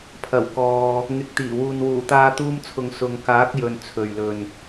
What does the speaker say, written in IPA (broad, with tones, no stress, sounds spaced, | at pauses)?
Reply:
pʰ ɐ˨˩ w k ɔː˨ | ŋ ɪ˨˥ k̚ t̪ iː˨˩ w uː˨ n w uː˨˩ t̪ aː˧ t̪ uː˧ m t͡sʰ ʊ˨ ŋ s ʊ˨ ŋ k aː˨˥ k̚ j ɵ˨ n t͡sʰ ɵ˨ ɥ l ɵ˨ n